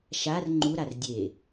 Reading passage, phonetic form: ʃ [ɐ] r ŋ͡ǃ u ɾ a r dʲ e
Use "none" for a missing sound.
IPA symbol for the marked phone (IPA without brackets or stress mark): a